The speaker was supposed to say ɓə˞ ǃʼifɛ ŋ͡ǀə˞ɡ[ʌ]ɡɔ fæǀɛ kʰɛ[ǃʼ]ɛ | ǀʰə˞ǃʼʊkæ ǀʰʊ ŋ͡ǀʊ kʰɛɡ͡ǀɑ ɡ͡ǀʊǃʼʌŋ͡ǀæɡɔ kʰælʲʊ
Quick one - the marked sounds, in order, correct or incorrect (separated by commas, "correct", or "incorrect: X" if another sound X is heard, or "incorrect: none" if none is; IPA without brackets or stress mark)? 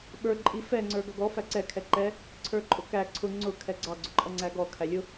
correct, incorrect: ǃ